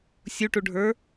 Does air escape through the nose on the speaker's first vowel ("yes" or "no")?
no